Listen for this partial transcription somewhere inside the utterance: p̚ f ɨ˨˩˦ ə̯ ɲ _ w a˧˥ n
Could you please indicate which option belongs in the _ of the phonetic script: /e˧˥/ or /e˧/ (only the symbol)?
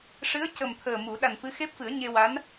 e˧